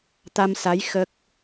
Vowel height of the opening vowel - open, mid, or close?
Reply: open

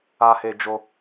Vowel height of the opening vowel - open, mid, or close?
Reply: open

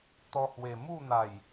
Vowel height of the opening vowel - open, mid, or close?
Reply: mid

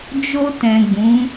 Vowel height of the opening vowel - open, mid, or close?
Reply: mid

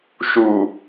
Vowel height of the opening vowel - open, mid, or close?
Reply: close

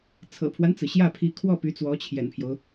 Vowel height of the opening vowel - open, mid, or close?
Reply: mid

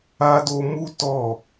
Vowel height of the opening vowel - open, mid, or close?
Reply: open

